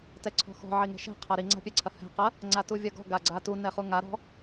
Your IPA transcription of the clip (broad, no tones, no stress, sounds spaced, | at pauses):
t ɛ ǀʰ ɔ̤ x ɔ̤ ʕ i ŋ ɛ̤ ʃ ɛ̤ qʰ ɐ ɾ i ŋ͡ǀ a̤ pʲ ɛ ǀʰ ɐ h ɛ̤ q ɐ | ŋ͡ǀ a t u vʲ ɐ ɡ ɔ̤ ɡ a ɡ͡ǀ a t u n ɛ χ u ŋ a ɾ ɔ̤